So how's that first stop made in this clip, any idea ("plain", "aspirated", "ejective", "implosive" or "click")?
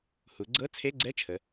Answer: click